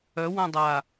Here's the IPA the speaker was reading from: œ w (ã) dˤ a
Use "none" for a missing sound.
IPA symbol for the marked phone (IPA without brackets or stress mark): ã